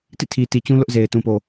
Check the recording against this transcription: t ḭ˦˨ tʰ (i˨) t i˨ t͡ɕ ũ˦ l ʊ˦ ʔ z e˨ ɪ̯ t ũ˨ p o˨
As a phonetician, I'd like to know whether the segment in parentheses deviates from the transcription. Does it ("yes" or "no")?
no